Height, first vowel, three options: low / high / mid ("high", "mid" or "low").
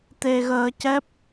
mid